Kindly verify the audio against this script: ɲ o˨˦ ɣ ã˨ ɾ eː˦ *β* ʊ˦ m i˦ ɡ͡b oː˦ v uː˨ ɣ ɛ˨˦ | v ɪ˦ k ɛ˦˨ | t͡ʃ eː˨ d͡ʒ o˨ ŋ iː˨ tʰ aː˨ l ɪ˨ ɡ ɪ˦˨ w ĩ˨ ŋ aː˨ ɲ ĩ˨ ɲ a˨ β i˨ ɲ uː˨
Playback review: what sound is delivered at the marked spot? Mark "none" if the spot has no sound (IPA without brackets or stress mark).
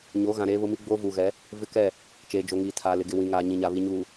β